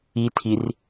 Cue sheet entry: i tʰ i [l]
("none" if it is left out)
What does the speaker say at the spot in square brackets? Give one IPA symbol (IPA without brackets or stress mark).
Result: r